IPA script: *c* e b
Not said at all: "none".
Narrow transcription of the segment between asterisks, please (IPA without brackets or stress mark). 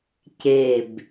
c